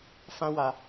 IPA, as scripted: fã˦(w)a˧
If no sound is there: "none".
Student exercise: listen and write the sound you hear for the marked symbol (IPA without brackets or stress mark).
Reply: w